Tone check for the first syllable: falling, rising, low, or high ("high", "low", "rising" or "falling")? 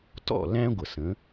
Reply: falling